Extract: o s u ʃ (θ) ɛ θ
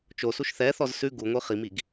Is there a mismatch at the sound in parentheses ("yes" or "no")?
no